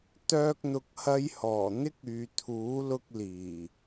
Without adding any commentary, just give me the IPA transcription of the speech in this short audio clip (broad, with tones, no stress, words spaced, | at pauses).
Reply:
t̪œː˥k̚n̪ʊ˧k̚hɐ˥jhɔː˨˩ n̪ɪ˥k̚yː˨ t̪ʰuː˨˥ lʊ˥k̚liː˨˩